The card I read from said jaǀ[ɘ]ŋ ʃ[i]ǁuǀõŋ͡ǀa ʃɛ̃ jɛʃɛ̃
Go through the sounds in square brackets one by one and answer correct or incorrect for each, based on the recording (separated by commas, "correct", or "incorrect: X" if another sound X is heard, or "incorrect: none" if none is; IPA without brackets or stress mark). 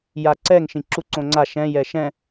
incorrect: ɛ, incorrect: ĩ